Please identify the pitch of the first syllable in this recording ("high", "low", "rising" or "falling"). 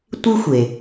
high